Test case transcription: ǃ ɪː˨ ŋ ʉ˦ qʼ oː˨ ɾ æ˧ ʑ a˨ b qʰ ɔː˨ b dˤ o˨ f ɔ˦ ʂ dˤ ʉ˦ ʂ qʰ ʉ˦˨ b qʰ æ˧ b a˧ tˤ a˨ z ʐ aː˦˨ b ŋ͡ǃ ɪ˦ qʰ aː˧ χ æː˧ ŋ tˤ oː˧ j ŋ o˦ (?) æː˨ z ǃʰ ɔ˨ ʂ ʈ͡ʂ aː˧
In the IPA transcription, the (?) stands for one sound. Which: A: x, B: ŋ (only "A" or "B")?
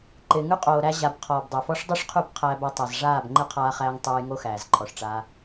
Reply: A